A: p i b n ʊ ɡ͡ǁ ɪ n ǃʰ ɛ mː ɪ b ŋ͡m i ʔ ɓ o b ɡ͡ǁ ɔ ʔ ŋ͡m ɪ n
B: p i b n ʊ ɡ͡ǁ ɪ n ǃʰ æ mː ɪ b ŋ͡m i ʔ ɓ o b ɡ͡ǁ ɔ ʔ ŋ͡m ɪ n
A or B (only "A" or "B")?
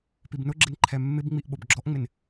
A